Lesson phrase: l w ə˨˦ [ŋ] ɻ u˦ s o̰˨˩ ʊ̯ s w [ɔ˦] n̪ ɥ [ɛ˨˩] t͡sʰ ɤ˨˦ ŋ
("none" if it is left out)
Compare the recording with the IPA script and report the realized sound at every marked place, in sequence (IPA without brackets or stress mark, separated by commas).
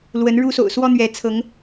n, ɔ˦, ɛ˨˦